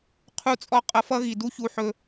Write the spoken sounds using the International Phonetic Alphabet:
qʰu˦˨t͡sʼɔ˦ qʼʌ˧fʌ˦ɣi˨ du˦çu˧ħɵ˧

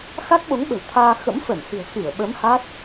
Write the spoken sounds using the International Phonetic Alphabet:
xa˦˥k̚ɓo˨˦ŋ ɓə̤˨˩wt̪ʰaː˧ xə̰˧˥mfə˧˩nhɨ̤˨˩ə̯ xɨ˧˩ə̯ɓə˨˦m ha˦˥t̚

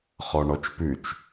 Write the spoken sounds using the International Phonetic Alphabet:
χɔɳɔt͡ʃpʉt͡ʃ

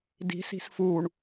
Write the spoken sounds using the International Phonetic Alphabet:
di̤si̤s fuɳ

